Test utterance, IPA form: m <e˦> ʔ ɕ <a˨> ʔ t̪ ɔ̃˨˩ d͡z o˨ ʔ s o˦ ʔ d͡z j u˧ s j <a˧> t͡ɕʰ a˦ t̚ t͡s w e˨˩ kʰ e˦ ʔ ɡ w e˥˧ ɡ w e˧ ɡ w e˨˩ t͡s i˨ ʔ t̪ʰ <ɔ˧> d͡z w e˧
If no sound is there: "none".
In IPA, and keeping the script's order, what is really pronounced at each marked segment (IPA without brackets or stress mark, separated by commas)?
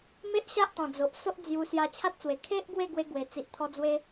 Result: e˦, a˦, a˧, ɔ˧